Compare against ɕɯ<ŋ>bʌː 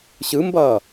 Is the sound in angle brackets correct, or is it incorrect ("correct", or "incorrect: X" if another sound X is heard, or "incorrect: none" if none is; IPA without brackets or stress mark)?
incorrect: m